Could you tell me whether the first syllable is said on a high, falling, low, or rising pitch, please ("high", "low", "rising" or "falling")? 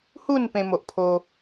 falling